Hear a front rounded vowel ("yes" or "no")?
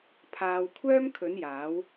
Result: yes